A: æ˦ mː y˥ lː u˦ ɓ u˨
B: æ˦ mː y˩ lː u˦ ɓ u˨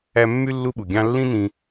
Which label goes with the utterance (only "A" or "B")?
A